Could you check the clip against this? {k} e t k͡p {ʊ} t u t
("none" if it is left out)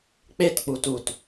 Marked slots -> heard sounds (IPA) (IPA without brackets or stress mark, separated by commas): k͡p, u